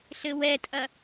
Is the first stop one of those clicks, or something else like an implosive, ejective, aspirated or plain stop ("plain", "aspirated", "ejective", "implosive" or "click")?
ejective